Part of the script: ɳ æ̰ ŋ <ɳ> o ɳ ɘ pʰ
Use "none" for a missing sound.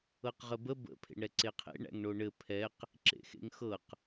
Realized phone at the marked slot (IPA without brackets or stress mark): ɳ